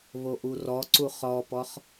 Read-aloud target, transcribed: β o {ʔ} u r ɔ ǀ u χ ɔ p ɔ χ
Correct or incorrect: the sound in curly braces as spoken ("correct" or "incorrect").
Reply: correct